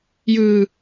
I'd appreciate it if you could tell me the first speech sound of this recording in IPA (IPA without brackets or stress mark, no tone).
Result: j